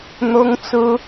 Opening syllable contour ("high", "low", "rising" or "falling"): high